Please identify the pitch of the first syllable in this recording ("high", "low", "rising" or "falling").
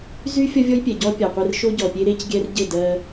high